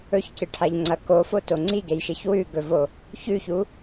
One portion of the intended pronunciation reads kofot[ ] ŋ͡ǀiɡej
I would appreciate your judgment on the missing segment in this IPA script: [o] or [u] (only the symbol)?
o